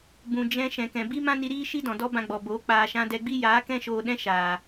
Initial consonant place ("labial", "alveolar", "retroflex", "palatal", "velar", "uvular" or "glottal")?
labial